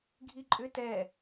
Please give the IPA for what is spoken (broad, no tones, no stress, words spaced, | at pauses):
ɡʱiǃʼʏ tɛ